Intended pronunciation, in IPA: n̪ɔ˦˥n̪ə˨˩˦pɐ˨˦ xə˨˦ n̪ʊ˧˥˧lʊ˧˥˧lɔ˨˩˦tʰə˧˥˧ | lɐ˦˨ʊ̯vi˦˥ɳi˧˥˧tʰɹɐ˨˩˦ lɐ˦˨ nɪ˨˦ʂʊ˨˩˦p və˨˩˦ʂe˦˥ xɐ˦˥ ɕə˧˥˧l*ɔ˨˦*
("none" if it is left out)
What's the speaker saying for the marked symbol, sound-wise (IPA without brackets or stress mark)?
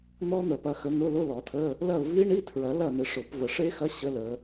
ə˨˦